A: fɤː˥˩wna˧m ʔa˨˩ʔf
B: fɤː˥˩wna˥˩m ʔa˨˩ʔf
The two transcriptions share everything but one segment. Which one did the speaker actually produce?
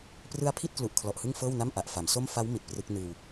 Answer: B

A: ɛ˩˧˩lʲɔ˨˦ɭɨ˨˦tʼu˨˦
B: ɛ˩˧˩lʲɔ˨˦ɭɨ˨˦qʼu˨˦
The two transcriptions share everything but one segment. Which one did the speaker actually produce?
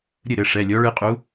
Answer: B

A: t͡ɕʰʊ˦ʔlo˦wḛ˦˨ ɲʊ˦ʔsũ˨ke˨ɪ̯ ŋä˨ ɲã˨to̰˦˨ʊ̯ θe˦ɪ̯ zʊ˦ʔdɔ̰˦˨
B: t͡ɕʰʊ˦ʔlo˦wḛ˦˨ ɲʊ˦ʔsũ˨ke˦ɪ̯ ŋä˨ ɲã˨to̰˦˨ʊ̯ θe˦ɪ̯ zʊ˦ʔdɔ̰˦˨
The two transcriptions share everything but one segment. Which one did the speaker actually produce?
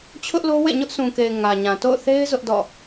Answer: A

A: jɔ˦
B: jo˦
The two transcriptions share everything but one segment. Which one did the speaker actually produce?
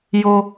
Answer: B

